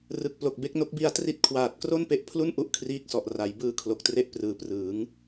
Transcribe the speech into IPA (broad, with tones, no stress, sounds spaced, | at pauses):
r ɯ˨˩ k̚ p l o˨˩ k̚ b e˦˥ k̚ n o˦˥ k̚ b i˧ a̯ t r i˦˥ t̚ kʰ w aː˨˩ t̚ k r o˥˩ n p e˦˥ ʔ pʰ l u˥˩ n ʔ u˦˥ ʔ kʰ r iː˦˥ k̚ s ɔ˨˩ ʔ r a˩˦ j b ɯː˧ kʰ l o˨˩ k̚ t r e˦˥ ʔ p r ɯː˨˩ p r ɯː˩˦ ŋ